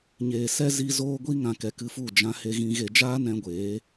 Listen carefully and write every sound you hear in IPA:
ɲ eː˨ s ɛ˦ z i˧ z oː˦ ɡʷ i˧ ŋ ã˨ k ɛ˨ k ɨ˧ f u˦˨ d͡ʒ ã˧ h e˧ ɣ ĩ˧ ɣ e˧ d͡ʒ aː˦ n ɛ̃˧ ɡʷ eː˨˦

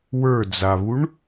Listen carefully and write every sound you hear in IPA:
w ə˞ d͡z a β u ɳ

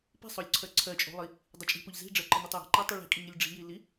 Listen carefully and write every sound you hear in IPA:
p i̤ sˤ o lʲ ǀʰ ɜ ǀʰ ɜ t͡ʃʼ o̤ lˠ i | dˤ ə t͡ʃʼ i̤ p o ʎ z i̤ ɖ͡ʐ ɜ ǃ ɯ n ʊ tˤ j e̤ ǃ e tˤ i ɭ i̤ kʼ i ŋ i lʲ ɖ͡ʐ i̤ j i l i

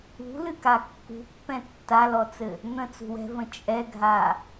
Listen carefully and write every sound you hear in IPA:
ṳ l ɨ k a kː ṳ pː ɛ̃ tː a l ɔ t͡s ɘ | n̪ ə̃ t͡s ṳ w ɛ̤ v ə̃ t͡ʃʼ ɛ ɡʱ a

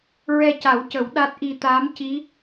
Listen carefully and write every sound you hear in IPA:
ɹ ɛ˧ c a˨˩˦ w c ə˨˩˦ w ɗ a˦˥ t̚ ʔ i˧ t̪ aː˧˥ m c i˧˥

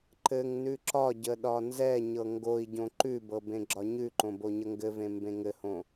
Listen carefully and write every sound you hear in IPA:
ǃ ɘ ŋ n ʉ ǁ ɒ ɟ ə ɗ ɒ n z ɛ ɲ ɤ ŋ ɡ o i̯ ɟ õ ǃ ʉ b ɤ b ẽ ɡ͡ǁ ɒ ɲ ʉ ǃ õ b o ɲ ə ŋ ɡ ɘ v ẽ m b ẽ ŋ ɘ h õ

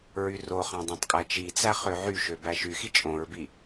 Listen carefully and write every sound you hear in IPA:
ɹ y r o χ ɑ̃ dˤ æ̃ tˤ kʼ æ t͡ʃ i t͡s æ χ ø ʕ y ʃ ø b æ ʃ y x i t͡ʃʼ õ ɹ b i

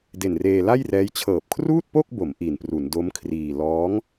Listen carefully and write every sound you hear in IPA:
d e˨˩ n r eː˧ l a˥˩ j r ɛː˦˥ j t͡ɕʰ ɤː˨˩ p̚ kʰ r uː˥˩ t̚ p o˥˩ k̚ b o˩˦ m ʔ i˨˩ n p r u˩˦ n d o˦˥ m kʰ r iː˧ l ɔː˦˥ ŋ

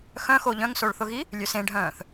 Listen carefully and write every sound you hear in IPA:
x œ̃ x o ʎ œ̃ ŋ s o ɭ θ ʊ ɣ i | lʲ ø s ẽ ɖʱ œ̃ː θ

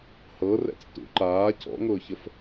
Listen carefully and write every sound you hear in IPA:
h ɤ r ɛ̰ t͡s t ṵ ǃ aː cʰ ɔ̰ ŋ ʊː ç ə f

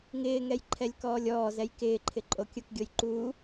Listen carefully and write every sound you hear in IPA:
ŋ ɪː ŋ ɛ j ǃʰ ɛ lʲ k ɔː lʲ ɔː z ɛ j k ɪː ǃʰ ɪ ǃʼ o kʲ ʊ k ɡʲ o j ǃ u

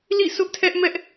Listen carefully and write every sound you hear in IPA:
l ḭ˦˨ sʰ ʊ˦ ʔ tʰ ɛ˦ ʔ m ɛ˦ ʔ

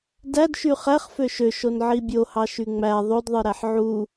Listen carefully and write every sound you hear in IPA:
d æ d ʃ y χ æ χ f ø ʃ ø ʃ o n ʕ i bʲ o h ɑ ʃ y ŋ͡m æ ðˤ o d ðˤ ɯ ɾ æ ħ ʕ u

